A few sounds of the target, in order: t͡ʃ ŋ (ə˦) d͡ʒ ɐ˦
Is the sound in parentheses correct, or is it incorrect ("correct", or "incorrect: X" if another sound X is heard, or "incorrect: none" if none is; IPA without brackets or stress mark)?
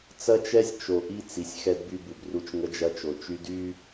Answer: correct